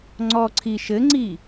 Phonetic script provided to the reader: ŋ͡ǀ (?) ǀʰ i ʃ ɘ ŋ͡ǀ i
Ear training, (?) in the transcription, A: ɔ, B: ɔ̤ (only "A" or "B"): A